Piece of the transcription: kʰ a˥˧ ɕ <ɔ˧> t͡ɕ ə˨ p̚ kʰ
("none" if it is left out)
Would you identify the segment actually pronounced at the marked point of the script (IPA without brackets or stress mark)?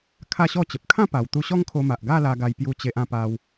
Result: ɔ˥˧